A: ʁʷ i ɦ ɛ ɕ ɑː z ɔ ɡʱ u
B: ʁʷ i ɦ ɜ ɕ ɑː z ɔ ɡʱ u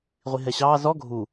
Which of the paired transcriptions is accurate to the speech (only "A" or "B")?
A